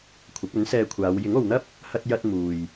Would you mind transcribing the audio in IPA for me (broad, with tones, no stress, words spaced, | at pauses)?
kʷʰɐ˨˥k̚ɵ˨˥nsɛː˧kʷʰaː˨˧w jɪ˨˥ŋo˨wn̪ɐ˥p̚ | hɐ˧t̚jɐ˧t̚ muː˨j